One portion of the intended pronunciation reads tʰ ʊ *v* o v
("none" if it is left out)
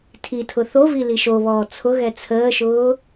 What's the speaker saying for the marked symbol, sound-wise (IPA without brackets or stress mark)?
θ